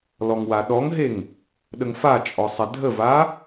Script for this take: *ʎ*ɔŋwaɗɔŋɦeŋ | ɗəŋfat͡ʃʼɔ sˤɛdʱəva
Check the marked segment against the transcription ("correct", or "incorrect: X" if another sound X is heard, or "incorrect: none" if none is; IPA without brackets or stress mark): incorrect: l